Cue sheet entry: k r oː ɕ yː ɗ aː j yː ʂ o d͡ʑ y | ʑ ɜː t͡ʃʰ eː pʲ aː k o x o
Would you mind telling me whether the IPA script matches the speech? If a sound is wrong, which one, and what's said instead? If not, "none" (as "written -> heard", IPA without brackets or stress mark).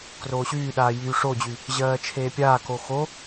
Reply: none